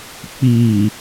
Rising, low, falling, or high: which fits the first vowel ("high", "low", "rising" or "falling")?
low